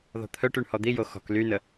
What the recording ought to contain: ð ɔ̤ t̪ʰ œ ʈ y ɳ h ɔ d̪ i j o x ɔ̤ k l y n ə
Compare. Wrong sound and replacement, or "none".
none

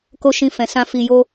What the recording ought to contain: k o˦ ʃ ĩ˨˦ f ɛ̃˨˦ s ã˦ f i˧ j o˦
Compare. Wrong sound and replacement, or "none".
ĩ˨˦ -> ĩ˦˨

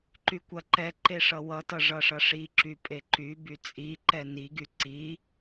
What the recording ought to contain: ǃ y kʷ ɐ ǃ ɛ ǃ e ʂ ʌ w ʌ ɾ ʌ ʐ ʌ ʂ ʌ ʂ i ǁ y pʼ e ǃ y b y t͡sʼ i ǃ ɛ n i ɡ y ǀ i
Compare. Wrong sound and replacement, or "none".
ɾ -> t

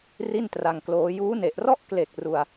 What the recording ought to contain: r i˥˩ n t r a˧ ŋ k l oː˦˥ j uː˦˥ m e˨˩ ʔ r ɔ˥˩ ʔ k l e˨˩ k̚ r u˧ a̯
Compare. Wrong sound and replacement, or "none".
m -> n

